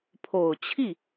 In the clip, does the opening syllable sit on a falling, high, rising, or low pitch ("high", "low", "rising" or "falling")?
low